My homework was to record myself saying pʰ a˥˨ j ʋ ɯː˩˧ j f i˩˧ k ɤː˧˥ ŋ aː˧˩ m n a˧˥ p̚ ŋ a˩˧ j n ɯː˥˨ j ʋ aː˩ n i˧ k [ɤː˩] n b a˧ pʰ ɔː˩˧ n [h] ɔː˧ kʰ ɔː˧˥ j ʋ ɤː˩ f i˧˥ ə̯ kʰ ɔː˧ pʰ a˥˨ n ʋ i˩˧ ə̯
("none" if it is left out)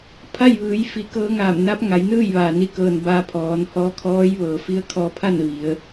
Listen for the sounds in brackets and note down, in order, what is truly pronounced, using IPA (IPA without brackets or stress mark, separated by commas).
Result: ɤː˩, h